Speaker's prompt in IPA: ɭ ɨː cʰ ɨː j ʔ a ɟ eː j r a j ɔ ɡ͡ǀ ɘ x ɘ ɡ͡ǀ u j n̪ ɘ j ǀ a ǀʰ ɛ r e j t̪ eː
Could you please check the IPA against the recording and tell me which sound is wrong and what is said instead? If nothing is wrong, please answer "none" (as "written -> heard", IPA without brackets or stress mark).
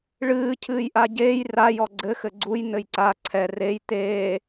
none